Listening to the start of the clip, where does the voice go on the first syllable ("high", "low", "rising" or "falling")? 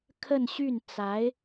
falling